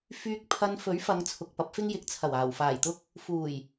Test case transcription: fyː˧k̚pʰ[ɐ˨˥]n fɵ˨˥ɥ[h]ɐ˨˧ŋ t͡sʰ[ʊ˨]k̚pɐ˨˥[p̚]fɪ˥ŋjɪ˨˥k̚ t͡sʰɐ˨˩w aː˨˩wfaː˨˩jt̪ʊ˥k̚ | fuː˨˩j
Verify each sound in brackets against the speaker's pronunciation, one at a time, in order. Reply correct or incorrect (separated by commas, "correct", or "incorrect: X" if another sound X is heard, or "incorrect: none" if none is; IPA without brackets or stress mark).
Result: incorrect: ɐ˧, incorrect: f, correct, correct